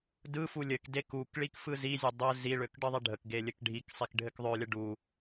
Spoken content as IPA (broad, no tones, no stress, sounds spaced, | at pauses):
d ɯ f u lʲ ɘ k d e k u k ɭ i k f ɯ z i zʲ ɘ dˤ ɘ z i ɭ ø k ɖ ɯ ðˤ ɛ ɖʱ ə k ɡ e lʲ ɘ k ɖʱ i k sˤ i k ɖʱ ɘ k ðˤ ø lʲ ə ɖ u